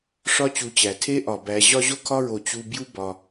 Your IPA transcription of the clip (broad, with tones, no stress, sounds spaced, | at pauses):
ʂ ɒ˦ t͡ɕ u˨ t͡ɕ æ˩ tʰ e˥ ʔ ɒ˩ b æ˨ ʑ ɒ˦ ʑ o˥ kʰ ɒ˥ ɹ o˨ t͡ɕ u˦ b j u˥ b ɒ˨